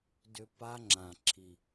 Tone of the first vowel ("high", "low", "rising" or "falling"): high